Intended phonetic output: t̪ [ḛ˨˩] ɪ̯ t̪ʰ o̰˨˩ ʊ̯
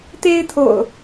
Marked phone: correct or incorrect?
incorrect